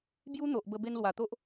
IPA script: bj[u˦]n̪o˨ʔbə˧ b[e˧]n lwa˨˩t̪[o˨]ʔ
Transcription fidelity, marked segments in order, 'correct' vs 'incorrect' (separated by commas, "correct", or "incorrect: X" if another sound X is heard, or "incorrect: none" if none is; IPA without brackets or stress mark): correct, correct, incorrect: o˦